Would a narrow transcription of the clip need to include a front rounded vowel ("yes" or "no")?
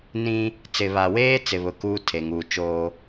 no